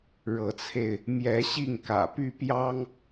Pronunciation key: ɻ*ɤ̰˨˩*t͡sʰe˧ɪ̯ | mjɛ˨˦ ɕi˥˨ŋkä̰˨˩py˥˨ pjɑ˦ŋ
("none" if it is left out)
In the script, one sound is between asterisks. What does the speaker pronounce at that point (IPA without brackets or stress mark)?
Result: ɤ˨˦